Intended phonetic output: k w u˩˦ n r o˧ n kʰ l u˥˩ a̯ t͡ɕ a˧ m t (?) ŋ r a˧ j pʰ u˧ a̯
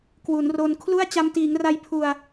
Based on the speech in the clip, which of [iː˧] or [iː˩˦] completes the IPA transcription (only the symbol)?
iː˩˦